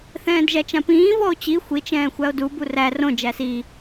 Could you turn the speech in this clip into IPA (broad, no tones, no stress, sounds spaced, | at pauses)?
θ ɛ̃ː d ʒ æ t͡ʃ ã p ĩː v ɔ o̯ t͡ɕ i xʷ i t͡ʃ ɛ̃ː xʷ æ o̯ d u b u r æ r õ d͡ʒ æ s i